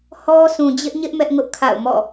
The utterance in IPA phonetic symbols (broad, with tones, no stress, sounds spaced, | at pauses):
h ɔ˦ s ũ˨ d͡ʑ ɪ˦ ʔ ɲ ɪ˦ ʔ m ɛ˦ ʔ ŋ ʊ˦ ʔ kʰ a̰˦˨ ʊ̯ m ɔ̰˦˨